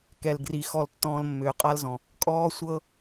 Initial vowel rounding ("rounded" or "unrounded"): unrounded